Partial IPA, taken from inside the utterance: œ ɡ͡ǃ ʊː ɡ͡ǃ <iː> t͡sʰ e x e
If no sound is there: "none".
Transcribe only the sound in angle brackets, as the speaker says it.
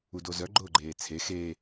eː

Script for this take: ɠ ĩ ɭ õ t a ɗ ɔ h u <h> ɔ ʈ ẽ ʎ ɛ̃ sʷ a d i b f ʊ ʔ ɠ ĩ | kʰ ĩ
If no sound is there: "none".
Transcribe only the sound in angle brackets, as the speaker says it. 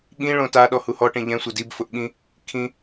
h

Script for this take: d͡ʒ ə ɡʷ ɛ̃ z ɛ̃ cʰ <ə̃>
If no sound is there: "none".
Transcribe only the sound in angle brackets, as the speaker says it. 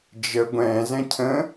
ə̃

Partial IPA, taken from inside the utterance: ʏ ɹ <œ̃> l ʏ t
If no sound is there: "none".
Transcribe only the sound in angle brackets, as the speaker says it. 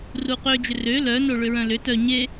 œ̃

